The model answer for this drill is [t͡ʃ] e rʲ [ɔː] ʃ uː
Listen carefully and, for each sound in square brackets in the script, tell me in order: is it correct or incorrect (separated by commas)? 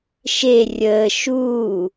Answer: incorrect, incorrect